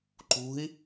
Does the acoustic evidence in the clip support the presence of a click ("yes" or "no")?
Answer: yes